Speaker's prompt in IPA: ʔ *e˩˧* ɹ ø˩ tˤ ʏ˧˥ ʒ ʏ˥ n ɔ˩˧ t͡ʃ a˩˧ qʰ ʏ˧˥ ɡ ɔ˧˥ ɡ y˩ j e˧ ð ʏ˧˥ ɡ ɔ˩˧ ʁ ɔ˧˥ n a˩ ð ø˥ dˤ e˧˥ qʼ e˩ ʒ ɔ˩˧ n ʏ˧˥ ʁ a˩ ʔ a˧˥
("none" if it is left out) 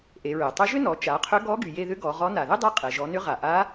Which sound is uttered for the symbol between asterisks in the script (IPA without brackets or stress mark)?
e˩˧